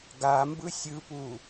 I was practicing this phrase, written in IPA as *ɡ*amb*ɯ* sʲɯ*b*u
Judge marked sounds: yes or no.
yes, yes, no

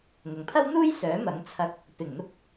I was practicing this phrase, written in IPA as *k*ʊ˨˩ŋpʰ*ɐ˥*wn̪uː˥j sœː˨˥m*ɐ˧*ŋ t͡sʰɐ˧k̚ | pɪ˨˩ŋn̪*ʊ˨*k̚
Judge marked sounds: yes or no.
no, yes, no, no

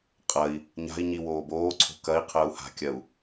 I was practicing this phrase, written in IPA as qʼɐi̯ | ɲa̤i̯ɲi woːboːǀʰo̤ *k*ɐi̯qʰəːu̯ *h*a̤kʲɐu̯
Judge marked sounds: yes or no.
yes, yes

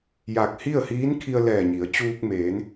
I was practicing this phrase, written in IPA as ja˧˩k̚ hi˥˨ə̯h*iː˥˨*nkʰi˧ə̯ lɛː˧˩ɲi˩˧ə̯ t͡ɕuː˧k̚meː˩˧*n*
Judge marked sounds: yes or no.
no, yes

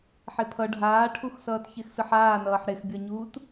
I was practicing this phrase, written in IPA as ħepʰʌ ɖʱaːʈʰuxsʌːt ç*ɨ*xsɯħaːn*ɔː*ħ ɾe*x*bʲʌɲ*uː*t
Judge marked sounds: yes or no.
no, no, yes, yes

